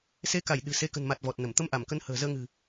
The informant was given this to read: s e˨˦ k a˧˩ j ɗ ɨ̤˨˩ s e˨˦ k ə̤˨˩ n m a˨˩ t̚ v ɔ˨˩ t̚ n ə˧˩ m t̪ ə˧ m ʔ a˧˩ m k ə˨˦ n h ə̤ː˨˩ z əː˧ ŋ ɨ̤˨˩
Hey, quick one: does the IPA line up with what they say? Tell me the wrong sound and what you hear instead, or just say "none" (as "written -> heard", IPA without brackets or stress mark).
none